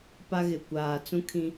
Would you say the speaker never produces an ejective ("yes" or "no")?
yes